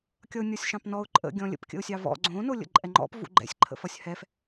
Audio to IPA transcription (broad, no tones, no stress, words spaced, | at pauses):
kʲʌʊ̯nʲɔsʲʃɑ̃pnɔʊ̯ ǃʼə̰ɡʲɔ̃ lʲə̰p kʲə̰ʊ̯sʲɑvɔ̰ ɡ͡ǀõ nolʲə̰ǃʼɛŋ͡ǃɔ̰p vṵɡ͡ǃɛ̰sʲǃʰə̰fʌsʲ hɛf